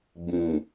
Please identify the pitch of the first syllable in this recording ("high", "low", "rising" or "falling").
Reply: low